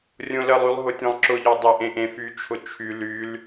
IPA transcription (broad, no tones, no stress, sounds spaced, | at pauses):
rʲ õ l ə lˠ y lˠ ɦ ʊ tʲ ẽ lˠ ǁ ʊ ʎ ɔ dˤ ɪ ʔ ẽ ʔ ẽ f y t͡ʃʰ ʊ t͡ʃʰ y l y l